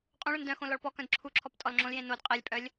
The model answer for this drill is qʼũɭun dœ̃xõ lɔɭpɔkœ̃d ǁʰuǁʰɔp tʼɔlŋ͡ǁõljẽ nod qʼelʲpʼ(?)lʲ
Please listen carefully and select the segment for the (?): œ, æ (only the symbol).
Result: œ